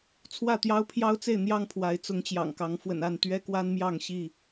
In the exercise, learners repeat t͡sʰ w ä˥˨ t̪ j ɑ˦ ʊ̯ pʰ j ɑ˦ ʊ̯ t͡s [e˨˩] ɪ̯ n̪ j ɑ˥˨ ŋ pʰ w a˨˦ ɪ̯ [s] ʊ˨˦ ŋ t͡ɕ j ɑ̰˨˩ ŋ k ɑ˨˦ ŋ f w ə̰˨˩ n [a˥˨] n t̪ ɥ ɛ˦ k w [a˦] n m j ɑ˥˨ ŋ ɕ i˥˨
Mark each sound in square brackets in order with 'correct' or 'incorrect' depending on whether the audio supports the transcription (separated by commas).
incorrect, incorrect, correct, correct